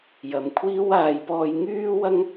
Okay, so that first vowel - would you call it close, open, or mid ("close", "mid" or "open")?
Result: open